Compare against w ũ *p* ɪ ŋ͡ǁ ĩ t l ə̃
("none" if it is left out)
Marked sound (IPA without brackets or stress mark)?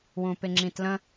p